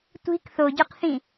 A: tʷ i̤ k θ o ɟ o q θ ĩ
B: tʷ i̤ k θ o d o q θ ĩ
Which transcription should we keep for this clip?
A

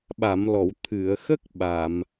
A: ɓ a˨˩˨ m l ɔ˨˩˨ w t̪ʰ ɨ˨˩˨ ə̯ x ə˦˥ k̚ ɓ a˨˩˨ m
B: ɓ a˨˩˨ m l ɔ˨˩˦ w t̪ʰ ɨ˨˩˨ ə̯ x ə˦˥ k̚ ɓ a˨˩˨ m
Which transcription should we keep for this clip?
A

